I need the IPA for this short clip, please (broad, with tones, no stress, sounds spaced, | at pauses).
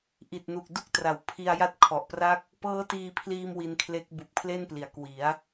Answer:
ʔ i˨˩ t̚ n u˨˩ k̚ d u˥˩ k̚ t r a˩˦ w pʰ i˧ a̯ j a˦˥ t̚ kʰ ɔ˨˩ ʔ p r a˥˩ k̚ | p ɤː˦˥ t iː˧ pʰ l iː˧ m w i˧ n kʰ l e˦˥ k̚ b u˨˩ k̚ pʰ l e˥˩ n p l i˩˦ a̯ k w i˩˦ a̯